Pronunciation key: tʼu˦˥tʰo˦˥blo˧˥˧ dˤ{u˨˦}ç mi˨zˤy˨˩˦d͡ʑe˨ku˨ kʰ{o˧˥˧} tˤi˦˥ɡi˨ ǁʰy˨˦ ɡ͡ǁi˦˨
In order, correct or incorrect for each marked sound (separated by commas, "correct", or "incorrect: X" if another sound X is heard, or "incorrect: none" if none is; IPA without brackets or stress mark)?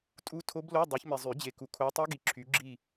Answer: correct, incorrect: o˦˥